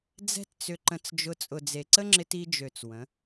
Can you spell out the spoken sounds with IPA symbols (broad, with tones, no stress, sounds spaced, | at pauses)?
d͡z ɛ̤˦ t t͡s ʏ˧ ǃ ə̃˧ t͡s d͡ʒ ʊ˧ t͡sʼ ʊ˨ d͡z e˨ ǀ ə˦ ŋ͡ǁ ɪ˧ t i˧ d͡ʒ ø˨ t͡s w ə̃˨˦